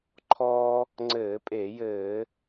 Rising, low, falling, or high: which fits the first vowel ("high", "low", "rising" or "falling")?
high